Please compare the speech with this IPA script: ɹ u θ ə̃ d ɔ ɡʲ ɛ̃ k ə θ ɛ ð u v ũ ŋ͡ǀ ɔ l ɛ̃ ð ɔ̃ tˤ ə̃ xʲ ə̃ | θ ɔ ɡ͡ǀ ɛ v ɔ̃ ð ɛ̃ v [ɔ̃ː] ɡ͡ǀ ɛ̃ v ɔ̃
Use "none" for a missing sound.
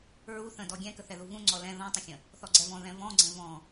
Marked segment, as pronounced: ɔ̃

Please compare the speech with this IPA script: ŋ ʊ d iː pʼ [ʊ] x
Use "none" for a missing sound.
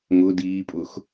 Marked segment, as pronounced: ʊ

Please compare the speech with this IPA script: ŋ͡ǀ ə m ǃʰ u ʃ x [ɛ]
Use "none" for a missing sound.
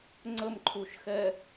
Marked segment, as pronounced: ɛ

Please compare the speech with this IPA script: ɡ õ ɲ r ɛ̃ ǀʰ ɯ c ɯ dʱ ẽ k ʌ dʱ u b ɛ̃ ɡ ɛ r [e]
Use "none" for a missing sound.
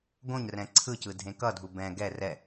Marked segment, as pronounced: ɛ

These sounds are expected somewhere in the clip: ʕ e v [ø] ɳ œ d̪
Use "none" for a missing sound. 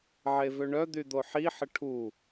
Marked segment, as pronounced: ø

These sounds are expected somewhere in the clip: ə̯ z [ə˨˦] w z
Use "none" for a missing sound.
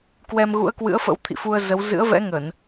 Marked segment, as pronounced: ə˨˦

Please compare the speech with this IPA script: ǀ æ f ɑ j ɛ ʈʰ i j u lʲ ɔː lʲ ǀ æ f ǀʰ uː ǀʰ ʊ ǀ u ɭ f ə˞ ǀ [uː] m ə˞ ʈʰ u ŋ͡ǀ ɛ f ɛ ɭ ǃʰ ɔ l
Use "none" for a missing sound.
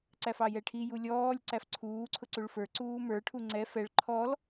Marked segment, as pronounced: uː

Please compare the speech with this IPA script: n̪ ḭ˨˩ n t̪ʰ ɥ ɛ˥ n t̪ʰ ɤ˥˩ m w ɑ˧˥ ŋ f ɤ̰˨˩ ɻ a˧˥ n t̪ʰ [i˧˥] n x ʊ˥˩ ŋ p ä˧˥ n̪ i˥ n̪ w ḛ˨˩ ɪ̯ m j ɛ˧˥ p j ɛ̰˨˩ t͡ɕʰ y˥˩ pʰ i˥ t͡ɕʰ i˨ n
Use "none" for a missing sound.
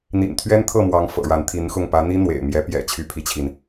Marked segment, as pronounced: i˧˥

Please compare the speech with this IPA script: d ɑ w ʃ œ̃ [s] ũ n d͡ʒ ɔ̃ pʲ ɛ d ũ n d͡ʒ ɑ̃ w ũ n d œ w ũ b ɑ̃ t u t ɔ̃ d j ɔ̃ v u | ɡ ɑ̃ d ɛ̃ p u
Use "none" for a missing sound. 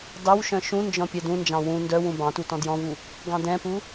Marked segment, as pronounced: ʃ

